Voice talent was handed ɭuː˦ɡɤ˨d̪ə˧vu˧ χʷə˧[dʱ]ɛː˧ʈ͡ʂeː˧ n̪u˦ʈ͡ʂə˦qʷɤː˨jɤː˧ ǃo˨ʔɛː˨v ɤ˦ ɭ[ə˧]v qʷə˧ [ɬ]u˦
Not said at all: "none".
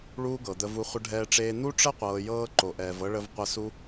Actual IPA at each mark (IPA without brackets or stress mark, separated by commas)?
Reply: ɖʱ, ə˧, s